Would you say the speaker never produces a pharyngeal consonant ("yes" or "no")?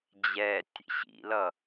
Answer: yes